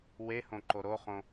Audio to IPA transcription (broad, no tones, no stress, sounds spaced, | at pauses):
w e h õ ǃ o ɾ o χ õ